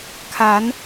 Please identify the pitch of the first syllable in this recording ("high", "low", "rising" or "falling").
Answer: rising